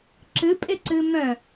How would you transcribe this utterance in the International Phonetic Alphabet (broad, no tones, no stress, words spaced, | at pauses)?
ǁɨpʼɪǀɨ mœ̃